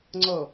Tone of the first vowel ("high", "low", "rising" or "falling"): low